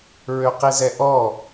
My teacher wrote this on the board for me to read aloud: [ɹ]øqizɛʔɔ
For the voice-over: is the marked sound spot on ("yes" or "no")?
yes